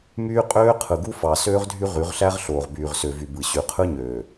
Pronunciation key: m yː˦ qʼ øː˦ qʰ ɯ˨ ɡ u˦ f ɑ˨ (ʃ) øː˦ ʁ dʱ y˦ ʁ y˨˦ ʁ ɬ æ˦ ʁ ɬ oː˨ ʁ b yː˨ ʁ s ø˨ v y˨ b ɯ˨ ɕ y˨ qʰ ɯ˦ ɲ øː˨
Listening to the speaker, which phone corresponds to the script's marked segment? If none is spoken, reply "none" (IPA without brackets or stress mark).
s